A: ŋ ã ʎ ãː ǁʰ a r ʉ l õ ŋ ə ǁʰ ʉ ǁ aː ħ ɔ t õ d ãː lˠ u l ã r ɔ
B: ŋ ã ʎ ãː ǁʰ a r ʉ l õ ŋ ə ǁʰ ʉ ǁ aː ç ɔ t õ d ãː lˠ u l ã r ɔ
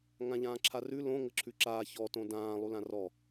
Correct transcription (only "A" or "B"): B